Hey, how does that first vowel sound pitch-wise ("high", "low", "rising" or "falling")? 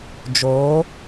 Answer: rising